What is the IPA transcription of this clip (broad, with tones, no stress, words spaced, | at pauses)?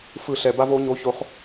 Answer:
fɯ˧˩ ɬɛ˧˩ba˥vo˧˥ɲo˧˥ ço˧˥χ